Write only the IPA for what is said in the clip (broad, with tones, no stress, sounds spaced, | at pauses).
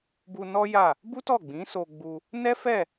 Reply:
b u˧ n ɔ˦ j a˦˨ | b u˦ t ɔ˦˨ ɡ͡b ĩ˨˦ s o˧ ɡ͡b u˧ | n ɛ˦ f ɛ˦˨